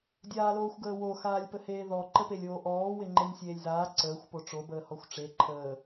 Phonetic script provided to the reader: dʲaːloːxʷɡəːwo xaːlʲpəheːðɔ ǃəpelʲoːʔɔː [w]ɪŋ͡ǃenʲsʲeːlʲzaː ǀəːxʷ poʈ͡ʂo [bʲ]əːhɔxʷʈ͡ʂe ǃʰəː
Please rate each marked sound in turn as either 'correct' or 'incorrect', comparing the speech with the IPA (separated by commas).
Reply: correct, incorrect